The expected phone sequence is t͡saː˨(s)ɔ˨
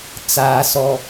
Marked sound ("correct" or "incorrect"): correct